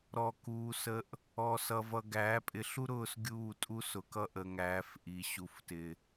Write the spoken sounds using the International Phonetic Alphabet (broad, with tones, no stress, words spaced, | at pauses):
ɾɔ˨kuː˨sə˨ʔ | ɔ˨sʌ˨vʌ˨ɡæː˨˦ pʼɪ˨˦ɬu˦ɾʊː˦˨s ɡʲuː˦˨tʼu˦sʊ˨kʌ˦ ʔə˨ŋæː˨˦f ʔi˨ɕu˨ftɪ˨